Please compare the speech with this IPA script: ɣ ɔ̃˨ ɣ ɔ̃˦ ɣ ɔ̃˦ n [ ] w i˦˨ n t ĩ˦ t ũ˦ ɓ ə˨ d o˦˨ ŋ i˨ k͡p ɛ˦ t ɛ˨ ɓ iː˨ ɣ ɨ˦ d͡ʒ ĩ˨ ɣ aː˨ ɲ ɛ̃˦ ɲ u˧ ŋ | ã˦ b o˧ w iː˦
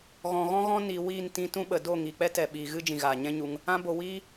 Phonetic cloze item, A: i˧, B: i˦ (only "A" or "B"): A